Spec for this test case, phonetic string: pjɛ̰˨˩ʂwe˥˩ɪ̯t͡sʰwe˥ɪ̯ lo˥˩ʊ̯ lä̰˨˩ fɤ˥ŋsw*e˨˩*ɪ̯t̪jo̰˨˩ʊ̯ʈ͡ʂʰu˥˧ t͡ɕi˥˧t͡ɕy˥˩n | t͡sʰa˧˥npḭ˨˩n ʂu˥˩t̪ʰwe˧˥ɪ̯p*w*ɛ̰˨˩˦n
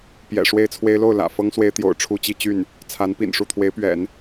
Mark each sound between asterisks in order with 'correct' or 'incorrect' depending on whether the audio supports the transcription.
incorrect, incorrect

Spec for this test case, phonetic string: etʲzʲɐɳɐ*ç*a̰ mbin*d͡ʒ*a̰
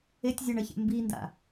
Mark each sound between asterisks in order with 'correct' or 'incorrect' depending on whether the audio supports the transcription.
correct, incorrect

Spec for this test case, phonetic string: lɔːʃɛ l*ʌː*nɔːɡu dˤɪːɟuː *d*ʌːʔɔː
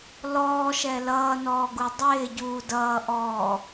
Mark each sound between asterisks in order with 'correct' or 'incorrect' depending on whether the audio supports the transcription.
correct, correct

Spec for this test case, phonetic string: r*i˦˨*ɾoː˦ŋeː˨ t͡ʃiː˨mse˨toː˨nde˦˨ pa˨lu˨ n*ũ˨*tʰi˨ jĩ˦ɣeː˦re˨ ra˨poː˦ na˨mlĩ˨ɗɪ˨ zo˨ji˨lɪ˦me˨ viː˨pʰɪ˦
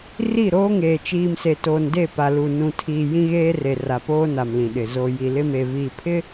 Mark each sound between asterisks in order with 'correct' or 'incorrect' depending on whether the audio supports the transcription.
correct, correct

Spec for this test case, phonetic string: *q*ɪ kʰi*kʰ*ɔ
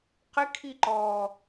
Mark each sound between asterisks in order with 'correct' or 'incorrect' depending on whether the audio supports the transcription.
correct, incorrect

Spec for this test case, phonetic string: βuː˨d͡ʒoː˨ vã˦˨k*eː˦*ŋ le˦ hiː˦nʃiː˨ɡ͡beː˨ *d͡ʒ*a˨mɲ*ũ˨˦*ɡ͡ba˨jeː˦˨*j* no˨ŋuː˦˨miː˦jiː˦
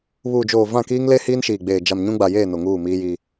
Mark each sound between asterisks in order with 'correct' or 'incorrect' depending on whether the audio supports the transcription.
incorrect, correct, incorrect, incorrect

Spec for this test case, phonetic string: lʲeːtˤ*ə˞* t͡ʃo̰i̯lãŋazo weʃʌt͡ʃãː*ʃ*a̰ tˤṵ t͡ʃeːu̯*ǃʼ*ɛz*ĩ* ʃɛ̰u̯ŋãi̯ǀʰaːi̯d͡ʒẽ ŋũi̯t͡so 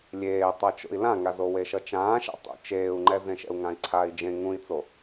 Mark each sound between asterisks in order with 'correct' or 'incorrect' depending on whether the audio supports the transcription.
incorrect, correct, incorrect, incorrect

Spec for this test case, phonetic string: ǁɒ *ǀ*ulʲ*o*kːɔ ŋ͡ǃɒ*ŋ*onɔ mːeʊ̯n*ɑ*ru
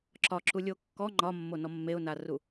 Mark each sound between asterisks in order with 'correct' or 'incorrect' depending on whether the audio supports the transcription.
incorrect, correct, incorrect, incorrect

